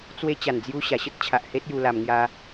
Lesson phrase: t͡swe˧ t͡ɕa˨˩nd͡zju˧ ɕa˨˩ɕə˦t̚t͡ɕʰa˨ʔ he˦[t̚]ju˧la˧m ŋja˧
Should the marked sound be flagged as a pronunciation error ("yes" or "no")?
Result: no